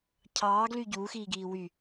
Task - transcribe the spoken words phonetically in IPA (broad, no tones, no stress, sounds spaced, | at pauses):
cʰ ɑː ɡ l y ɟ uː x iː ɡ iː w y